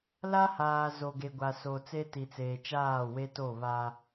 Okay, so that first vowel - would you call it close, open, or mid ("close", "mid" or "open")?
open